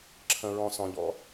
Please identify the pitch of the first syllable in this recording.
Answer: low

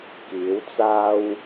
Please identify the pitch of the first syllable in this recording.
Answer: rising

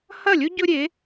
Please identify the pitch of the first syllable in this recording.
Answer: falling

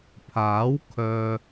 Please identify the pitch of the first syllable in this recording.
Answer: rising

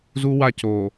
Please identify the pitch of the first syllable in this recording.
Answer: high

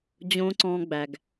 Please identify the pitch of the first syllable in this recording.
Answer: high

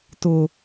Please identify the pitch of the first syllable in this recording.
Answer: high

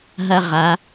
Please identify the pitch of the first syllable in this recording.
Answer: high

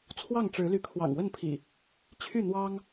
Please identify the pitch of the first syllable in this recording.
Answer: falling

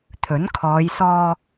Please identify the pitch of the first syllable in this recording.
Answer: rising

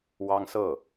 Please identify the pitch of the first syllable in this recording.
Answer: high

